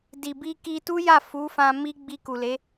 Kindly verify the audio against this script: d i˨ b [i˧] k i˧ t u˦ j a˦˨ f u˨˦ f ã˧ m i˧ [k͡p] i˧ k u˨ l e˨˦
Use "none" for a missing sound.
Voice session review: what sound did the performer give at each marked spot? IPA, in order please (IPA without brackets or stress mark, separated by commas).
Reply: i˧, ɡ͡b